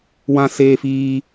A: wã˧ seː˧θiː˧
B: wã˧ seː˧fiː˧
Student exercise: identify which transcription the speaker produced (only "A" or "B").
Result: B